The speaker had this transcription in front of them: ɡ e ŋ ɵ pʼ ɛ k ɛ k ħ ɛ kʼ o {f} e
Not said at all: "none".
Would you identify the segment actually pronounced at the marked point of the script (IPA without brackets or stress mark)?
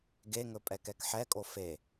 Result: f